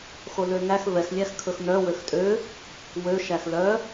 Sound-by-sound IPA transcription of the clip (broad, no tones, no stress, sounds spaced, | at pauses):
x o l ø ŋ æ x v ɛ x lʲ æ x kʰ ɵ x n œ w ø x tʼ ø | w ø ʃ æ x l œ